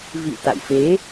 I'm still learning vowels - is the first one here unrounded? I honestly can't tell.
yes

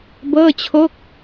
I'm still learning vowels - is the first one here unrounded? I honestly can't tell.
yes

